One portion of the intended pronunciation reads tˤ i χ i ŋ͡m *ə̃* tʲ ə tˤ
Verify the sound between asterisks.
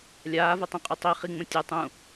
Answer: correct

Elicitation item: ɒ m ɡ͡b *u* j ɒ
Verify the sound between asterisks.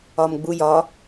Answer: correct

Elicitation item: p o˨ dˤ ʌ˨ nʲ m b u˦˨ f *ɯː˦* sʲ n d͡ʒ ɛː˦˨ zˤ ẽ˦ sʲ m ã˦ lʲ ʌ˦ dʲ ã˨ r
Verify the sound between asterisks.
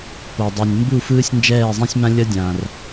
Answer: correct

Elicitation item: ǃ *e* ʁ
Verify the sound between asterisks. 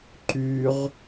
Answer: incorrect: y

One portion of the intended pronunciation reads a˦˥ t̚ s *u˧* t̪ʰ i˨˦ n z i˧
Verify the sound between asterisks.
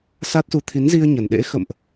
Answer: correct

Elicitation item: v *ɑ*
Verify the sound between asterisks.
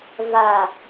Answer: incorrect: a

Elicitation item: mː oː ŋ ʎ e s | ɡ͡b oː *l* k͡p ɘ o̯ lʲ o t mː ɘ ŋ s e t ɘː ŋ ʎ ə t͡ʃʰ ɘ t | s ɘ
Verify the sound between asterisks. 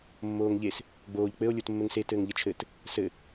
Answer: incorrect: ʎ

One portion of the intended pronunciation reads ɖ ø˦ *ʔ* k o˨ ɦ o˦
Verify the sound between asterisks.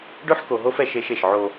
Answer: incorrect: ħ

